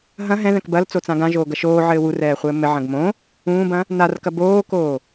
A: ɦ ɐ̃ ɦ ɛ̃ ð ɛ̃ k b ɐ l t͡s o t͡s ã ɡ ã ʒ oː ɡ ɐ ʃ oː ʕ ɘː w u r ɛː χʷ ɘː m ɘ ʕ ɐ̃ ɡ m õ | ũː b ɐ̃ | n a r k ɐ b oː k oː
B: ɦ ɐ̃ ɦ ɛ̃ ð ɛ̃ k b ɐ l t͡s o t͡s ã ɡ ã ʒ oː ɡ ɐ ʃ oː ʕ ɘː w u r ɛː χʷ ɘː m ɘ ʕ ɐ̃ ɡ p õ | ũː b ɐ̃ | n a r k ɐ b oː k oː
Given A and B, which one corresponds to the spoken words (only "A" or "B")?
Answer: A